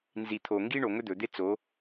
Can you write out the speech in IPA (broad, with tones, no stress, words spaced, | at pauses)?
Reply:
nzi˨t̪ʰo˨ ŋɡi˦ɳo˨ŋɵ˦ d̪ɵ˨d̪e˦ t͡so˨˦